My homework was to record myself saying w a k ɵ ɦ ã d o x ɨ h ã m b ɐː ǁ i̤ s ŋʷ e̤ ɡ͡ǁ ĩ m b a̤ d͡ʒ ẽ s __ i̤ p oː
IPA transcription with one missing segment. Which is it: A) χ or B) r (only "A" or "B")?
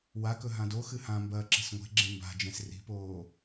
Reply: B